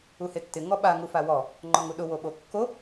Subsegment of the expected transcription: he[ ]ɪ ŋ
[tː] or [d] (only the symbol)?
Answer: tː